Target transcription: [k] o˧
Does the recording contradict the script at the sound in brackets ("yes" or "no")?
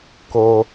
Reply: no